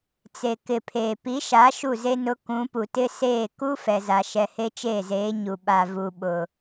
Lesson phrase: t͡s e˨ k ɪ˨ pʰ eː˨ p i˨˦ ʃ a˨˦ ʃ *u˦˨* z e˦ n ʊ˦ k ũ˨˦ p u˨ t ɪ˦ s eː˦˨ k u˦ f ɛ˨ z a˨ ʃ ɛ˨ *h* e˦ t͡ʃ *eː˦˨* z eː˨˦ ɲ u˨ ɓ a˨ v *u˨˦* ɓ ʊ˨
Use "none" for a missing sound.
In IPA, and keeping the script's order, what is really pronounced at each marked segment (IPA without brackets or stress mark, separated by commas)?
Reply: u˦˨, h, eː˦˨, u˨